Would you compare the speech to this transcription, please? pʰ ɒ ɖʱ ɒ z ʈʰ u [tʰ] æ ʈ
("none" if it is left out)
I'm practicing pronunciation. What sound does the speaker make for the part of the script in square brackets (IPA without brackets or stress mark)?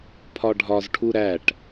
ɾ